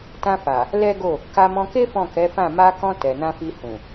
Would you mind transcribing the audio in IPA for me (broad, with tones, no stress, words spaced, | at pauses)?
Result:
tã˧fa˨ | lɛ˦ɡo˦˨ | ka˧mɔ̃˧ke˦ fɔ̃˦˨kɛ˨˦fã˦˨ ma˧kɔ̃˧ tɛ˨nã˧fi˧ hũ˨